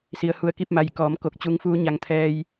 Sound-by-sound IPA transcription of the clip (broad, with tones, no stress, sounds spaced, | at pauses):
s i˩ ə̯ h u˧˩ ə̯ k i˥˨ p̚ m a˧˩ j k ɔː˩˧ m k o˧ k̚ t͡ɕ u˧ ŋ f uː˧˥ ɲ a˧ ŋ t̪ʰ ɛː˧ j